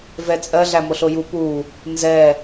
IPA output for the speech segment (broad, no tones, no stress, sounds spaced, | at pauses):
v ɛ t͡sʼ ɜ ɮ æ m o ɬ o j u p u | n z ɛ